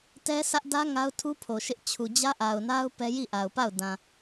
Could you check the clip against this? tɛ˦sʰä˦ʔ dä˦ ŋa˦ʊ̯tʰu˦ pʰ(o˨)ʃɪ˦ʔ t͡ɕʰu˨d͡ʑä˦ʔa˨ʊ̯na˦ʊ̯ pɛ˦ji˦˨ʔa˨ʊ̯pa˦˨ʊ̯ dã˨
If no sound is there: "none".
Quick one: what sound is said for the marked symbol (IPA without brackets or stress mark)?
o˨